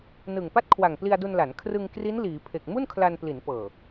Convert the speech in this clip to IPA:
n ɯ˨˩ ŋ p a˥˩ t̚ kʰ w a˨˩ ŋ p l i˧ a̯ d u˧ n l a˩˦ n kʰ r ɯ˧ ŋ k r i˦˥ n l iː˩˦ pʰ e˨˩ k̚ m u˥˩ n kʰ l a˧ n p l i˩˦ n p ɤː˨˩

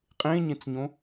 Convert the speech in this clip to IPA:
qʼ ẽ ɲ ẽ t͡s ɲ õ

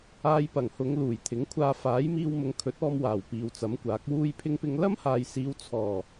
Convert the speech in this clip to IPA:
aː˧ j p ɐ˨˩ ŋ h ʊ˨˧ ŋ l uː˨˩ j t̪ʰ ɪ˨˥ ŋ kʷʰ aː˧ f aː˨˥ j m iː˧ w m ʊ˨˧ ŋ kʰ ɵ˨˥ t̚ ɔː˧ m w aː˨˩ w p iː˨ w t͡s ɐ˨˥ m kʷ aː˨˥ k̚ w uː˥ j pʰ ɪ˥ ŋ p ɪ˥ ŋ l ɐ˥ m h aː˨ j s iː˨˧ w t͡sʰ ɔː˨˩

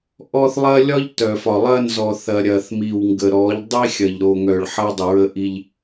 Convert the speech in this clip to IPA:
ʔ ɔ˦ θ lˠ ɐ˦ lʲ ɒ˦ ʎ t œ˨ f ɒ˨ lˠ ɐ˦ n z ɔ˨ θ ɐ˨ ɾʲ ɐ˨ θ m i˨ w ŋ ɡ ə˨ ɾ ɔ˨˦ ʎ dˤ i˦ xʲ ɐ˨ ʎ ɾ o˨ ŋ œ˨ ɭ ħ ɐ˦ dˤ ə˨ ɹ ə˦ ʔ i˦ ʎ

